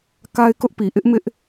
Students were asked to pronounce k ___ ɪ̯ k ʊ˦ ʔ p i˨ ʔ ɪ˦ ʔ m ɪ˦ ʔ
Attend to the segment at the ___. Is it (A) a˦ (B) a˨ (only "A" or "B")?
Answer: A